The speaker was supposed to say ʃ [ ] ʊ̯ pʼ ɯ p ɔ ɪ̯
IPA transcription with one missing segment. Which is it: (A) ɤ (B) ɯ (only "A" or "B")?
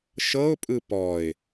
A